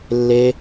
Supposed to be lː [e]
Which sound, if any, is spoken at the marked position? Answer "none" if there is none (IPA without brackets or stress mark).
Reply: e